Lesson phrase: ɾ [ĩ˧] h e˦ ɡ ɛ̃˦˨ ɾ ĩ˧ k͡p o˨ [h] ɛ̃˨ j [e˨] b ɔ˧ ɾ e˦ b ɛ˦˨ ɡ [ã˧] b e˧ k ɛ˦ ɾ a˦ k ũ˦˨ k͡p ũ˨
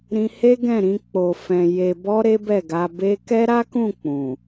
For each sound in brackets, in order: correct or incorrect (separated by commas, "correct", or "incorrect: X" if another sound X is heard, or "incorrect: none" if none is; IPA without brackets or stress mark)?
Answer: correct, incorrect: f, correct, incorrect: a˧